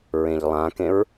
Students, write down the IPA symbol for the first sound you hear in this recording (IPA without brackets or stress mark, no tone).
ɹ